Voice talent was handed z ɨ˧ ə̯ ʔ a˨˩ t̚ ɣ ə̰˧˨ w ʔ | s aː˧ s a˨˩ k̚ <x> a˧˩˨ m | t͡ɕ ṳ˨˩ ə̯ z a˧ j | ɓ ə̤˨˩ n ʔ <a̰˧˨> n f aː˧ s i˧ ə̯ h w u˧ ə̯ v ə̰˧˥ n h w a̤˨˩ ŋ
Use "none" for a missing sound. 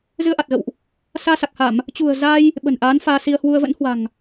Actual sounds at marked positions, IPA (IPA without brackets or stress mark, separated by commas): h, a˨˦